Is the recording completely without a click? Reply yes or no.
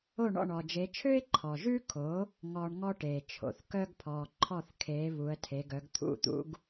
no